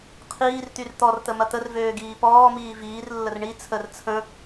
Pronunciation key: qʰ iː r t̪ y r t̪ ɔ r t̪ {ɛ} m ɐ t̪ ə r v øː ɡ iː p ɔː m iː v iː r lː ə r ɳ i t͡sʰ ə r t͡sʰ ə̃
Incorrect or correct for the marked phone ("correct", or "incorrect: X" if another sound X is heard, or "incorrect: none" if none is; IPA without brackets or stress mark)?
incorrect: ə